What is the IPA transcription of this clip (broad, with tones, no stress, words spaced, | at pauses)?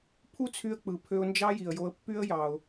pʰu˥t͡sʰy˧ə̯k͡pɯ˩ pʰø˧ʊ̯nd͡ʒɑ˥ji˩ə̯jo˧ə̯ pːy˥ə̯jɑ˩ʊ̯